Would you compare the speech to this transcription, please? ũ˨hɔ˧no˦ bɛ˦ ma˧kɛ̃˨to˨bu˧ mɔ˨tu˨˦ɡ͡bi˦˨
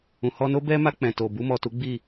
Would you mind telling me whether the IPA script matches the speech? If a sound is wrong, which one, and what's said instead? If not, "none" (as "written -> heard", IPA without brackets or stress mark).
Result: k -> k͡p